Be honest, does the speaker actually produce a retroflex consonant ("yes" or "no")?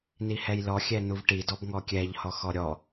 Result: yes